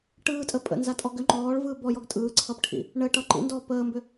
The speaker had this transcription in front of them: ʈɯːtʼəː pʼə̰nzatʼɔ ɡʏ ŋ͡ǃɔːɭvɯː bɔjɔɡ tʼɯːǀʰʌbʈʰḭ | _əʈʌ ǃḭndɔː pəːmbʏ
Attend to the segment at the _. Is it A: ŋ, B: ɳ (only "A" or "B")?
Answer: B